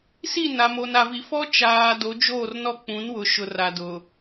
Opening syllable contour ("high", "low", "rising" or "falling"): falling